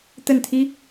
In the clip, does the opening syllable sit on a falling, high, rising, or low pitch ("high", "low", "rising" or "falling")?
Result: falling